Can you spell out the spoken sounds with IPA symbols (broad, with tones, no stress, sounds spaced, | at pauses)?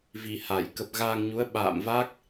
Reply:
v i˨˩ h a˧˩ j k ə˨˩ p̚ ɣ aː˧ ŋ ɲ u˨˦ ə̯ ɓ a̰ː˧˨ m v a˦˥ k̚